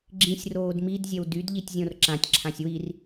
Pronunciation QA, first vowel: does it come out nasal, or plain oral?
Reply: nasal